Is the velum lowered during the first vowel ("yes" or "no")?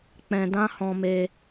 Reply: yes